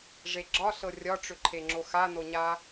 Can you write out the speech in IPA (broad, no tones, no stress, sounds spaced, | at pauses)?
ʐ e ɡ͡ǁ ɒ ɬ ɤ rʲ ɒ ʈ͡ʂ ʏ ǃʰ e ŋ͡ǁ o x a n o ɲ a